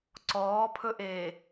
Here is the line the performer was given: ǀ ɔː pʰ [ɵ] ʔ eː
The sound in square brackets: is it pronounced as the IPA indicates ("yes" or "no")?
yes